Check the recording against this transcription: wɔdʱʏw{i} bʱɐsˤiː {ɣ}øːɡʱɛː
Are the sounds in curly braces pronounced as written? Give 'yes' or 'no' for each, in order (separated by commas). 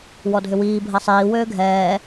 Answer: no, no